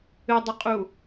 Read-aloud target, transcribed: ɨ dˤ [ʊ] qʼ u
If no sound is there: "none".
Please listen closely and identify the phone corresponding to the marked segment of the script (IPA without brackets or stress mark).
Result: ʊ